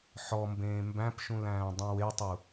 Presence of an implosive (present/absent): absent